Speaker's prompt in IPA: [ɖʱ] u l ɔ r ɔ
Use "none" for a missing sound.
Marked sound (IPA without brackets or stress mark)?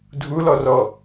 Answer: dʱ